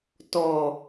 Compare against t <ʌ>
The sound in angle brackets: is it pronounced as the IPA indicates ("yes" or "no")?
no